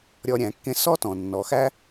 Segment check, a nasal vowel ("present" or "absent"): present